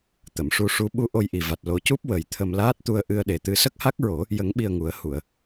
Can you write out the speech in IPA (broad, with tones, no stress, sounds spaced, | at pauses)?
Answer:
t̪ ə˨˩˨ m ʂ u˧ ʂ u˧˥ ɓ u˧ ʔ o˧ j ʔ i˨˩ v a˨˩ t̚ l o˨˩˦ c u˦˥ p̚ w ə˨˩ j t̪ʰ ə˧ m l aː˦˥ t̚ t̪ u˧ ə̯ ʔ ɨ˧ ə̯ ɗ e˨˩ t̪ ɨ˧ s ə˦˥ k̚ h a˦˥ k̚ ɹ o˨˩˦ | j ə˨˩˦ ŋ ɓ i˨˩ ə̯ ŋ u˨˩˦ ə̯ h u˨˩˨ ə̯